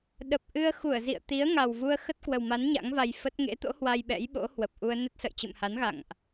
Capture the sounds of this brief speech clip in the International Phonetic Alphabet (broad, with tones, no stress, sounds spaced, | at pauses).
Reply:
ɗ ə˨˩ p̚ ʔ ɨ˧ ə̯ x u˧˩ ə̯ z ḭ˧˨ ə̯ t̪ i˨˦ ə̯ ŋ a˨˩ w v u˧ ə̯ x ə˦˥ t̚ k w ə˨˩ w m a˨˦ n ɲ a̰˧˥ ŋ v a˧ j f ə˦˥ t̚ ŋ ḛ˧˥ t̪ o̰˧˥ h w a˧ j ɓ ɛ̰˧˥ j ɓ o̰˧˥ h w ə˨˩ p̚ ʔ u˧ ə̯ n ə˦˥ t̚ s ə̰˧˨ j t͡ɕ ɨ̰˧˨ m h a˨˦ n ɣ a̰˧˨ ŋ ʔ